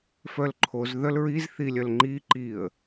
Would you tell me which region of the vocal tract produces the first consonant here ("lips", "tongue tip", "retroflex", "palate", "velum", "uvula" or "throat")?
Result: lips